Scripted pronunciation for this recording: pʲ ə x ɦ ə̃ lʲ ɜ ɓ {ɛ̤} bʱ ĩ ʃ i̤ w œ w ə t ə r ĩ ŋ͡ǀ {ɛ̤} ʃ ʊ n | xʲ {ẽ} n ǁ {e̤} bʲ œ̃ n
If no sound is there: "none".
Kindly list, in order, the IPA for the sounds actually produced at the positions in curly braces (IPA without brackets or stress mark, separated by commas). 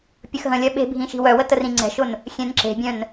e̤, ɛ̤, ẽ, e̤